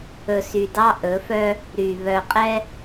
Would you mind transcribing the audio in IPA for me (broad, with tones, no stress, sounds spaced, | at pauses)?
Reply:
ɵ˨ s y˨ d ɑ˦ ʔ ɵ˨˦ f œ˦ | ɾ y˨ β œ˨ qʼ ɛ˦